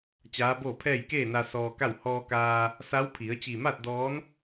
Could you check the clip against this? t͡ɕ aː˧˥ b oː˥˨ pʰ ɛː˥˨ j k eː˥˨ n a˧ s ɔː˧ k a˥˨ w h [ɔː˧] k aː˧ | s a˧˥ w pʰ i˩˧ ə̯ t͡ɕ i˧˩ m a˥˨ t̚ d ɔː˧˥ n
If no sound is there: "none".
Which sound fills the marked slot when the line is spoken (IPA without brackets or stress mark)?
ɔː˧